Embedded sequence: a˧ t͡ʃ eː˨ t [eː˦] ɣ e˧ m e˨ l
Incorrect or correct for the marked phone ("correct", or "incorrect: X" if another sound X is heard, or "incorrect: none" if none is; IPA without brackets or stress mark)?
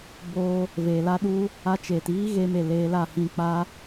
incorrect: iː˦